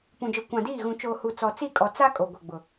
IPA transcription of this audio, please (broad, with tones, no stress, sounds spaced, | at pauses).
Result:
p ũ˨ d͡ʒ ɔ˨ kʷ ã˨ d iː˦˨ ɣ ũ˨ t͡ʃ oː˨ h u˨ t͡s ɔ˨ t͡s i˦˨ kʼ ɔ˨ t͡s a˦ kʼ o˨ ɡʷ ɛ˨ ɡ͡b ʊ˨